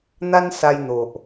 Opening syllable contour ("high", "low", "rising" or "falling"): high